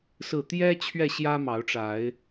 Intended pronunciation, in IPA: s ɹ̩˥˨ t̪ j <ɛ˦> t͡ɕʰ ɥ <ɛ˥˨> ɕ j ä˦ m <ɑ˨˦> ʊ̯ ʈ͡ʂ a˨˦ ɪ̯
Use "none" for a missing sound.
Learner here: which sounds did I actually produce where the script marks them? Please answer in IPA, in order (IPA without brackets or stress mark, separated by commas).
ɛ˦, ɛ˥˨, ɑ˨˦